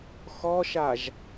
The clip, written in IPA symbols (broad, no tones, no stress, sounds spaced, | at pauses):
x ɔ ʃ a ʒ